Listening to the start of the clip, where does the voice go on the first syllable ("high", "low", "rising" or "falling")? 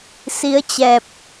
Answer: rising